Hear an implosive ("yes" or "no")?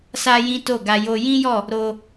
no